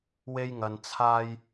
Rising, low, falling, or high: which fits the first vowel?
high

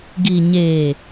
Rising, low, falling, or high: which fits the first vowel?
low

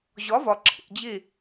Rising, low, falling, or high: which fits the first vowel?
rising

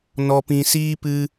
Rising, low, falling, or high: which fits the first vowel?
low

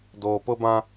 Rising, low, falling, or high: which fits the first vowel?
low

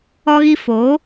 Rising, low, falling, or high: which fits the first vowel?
high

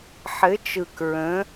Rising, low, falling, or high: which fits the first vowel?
rising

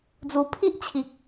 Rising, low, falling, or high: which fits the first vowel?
low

